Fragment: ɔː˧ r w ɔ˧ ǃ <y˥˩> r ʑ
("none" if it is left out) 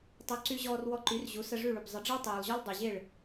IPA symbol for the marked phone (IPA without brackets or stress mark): y˩˥